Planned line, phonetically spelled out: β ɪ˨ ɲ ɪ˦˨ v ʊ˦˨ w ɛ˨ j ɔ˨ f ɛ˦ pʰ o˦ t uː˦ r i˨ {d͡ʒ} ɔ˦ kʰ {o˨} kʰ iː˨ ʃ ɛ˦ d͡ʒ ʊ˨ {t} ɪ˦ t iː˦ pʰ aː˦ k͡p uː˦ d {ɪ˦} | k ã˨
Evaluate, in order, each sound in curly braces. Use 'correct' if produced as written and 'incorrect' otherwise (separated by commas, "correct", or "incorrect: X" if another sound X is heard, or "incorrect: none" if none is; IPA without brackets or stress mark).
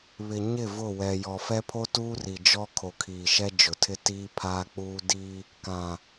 correct, correct, incorrect: tʰ, incorrect: i˦